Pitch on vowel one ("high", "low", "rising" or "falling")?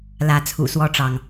rising